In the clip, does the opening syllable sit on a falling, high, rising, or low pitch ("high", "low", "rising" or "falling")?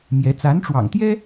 rising